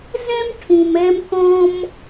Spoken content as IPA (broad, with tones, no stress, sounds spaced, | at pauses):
z ɛ̃˥ m ʈʰ ũ˩ m ɛ˧ m k ɔ̃˧ m